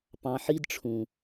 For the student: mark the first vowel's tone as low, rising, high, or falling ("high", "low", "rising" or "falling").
low